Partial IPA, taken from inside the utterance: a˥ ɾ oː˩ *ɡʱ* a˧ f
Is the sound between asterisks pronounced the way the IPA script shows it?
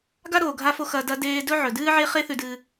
yes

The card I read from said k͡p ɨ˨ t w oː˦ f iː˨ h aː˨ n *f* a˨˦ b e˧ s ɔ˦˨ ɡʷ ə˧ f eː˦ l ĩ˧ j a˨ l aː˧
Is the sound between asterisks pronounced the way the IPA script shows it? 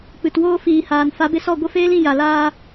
yes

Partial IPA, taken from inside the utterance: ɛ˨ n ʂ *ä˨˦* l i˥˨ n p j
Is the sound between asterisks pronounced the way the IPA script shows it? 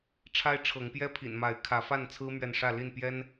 no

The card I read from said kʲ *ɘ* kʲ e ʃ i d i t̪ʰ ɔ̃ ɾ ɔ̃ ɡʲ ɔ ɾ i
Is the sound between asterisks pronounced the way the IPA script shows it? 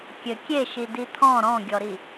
yes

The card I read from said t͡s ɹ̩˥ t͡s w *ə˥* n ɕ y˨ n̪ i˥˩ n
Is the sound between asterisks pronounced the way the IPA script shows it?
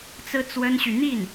yes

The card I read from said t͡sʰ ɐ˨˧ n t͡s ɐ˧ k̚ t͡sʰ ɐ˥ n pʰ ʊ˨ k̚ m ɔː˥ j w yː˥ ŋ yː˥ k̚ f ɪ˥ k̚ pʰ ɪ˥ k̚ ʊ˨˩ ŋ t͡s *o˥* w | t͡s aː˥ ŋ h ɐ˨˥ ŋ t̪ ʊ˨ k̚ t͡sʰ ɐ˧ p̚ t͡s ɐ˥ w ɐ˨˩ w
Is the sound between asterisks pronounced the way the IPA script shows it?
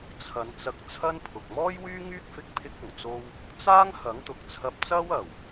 yes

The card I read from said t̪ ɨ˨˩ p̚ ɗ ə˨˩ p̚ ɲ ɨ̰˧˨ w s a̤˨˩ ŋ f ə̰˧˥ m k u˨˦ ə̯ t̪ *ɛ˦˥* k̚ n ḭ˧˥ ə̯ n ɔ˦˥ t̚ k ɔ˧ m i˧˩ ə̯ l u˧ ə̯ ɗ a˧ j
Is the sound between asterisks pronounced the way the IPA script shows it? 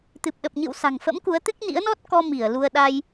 no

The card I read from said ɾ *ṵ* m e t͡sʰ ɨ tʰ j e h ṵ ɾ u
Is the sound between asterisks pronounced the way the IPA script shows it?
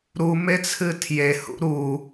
no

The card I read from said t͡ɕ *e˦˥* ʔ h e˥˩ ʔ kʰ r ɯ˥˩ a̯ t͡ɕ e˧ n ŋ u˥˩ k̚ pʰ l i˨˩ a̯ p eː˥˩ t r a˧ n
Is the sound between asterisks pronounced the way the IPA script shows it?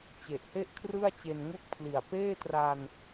no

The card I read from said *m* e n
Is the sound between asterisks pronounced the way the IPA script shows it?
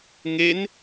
no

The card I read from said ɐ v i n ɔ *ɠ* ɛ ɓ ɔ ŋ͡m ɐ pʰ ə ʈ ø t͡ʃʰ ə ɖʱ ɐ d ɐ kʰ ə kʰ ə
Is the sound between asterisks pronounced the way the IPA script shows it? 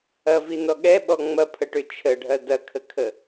yes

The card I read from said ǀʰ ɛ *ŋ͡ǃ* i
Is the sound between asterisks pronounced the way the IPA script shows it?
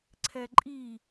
no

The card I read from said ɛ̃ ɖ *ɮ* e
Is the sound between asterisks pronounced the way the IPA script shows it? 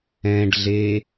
yes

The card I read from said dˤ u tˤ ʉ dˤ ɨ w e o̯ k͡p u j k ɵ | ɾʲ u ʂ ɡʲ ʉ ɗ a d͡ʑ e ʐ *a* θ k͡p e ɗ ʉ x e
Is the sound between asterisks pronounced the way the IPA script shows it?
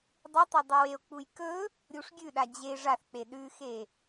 yes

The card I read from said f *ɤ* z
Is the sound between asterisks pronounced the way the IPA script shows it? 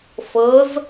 yes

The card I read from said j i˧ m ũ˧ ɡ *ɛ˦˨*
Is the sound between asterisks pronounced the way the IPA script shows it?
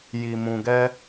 no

